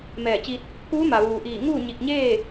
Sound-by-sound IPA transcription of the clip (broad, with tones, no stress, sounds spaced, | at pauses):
m ɛː˧˩ t͡ɕ i˧ t̚ | k uː˧˥ m a˩ ʋ uː˩ ʔ iː˧˩ ŋ uː˥˨ ɲ i˧˩ k̚ ɲ eː˥˨